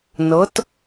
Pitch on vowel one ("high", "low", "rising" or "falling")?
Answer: rising